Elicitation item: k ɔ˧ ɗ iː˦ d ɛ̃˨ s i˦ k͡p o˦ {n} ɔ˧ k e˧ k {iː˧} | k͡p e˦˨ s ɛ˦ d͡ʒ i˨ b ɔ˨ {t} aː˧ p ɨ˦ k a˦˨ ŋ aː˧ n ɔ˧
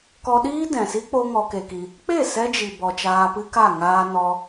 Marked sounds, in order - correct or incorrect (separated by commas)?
incorrect, incorrect, incorrect